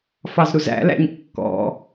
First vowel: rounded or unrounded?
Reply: unrounded